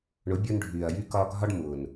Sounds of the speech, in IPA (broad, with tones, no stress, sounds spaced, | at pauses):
ɳ ʊ˨˦ bʲ ʊː˧ n ɖʱ yː˨ ɐ̯ j y˧ k ɒː˧ ɡʱ ɒ˦ ɖ m ʊː˨ n